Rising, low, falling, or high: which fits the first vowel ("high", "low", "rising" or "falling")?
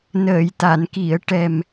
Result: low